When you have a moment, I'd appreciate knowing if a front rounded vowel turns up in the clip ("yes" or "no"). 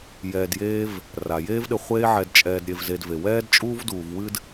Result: no